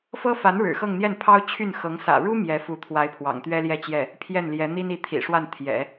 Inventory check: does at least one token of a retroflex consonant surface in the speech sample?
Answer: yes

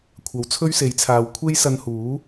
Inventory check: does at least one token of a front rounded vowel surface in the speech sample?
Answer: no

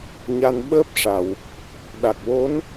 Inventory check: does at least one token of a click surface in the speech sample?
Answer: no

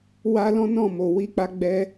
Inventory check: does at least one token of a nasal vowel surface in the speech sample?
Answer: yes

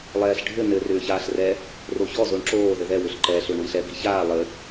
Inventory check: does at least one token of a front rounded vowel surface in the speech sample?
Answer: yes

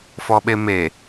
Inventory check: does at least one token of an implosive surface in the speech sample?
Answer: yes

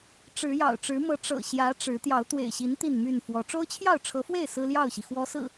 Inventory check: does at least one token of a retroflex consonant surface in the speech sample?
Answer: yes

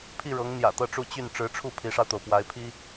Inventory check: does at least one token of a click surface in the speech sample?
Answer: no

